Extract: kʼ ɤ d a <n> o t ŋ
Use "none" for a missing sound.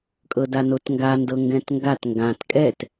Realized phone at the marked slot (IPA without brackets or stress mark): n